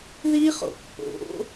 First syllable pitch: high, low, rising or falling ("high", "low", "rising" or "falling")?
high